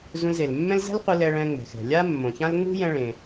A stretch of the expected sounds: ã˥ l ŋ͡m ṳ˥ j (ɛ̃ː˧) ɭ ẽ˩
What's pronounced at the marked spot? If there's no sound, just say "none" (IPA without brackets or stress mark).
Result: ɛ̃˧